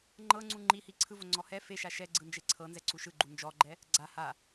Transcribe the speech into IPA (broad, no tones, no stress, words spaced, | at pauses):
ŋ͡ǃɤŋ͡ǀu ŋ͡ǃihi ǀʰɯvoŋ͡ǀɔ hɛ feʃa ʃɛɡ͡ǀɯnd͡ʒe ǀʰɤnzɛǀu ʃɯɡ͡ǃu nd͡ʒɔɡ͡ǃɛ | ɡ͡ǀa ha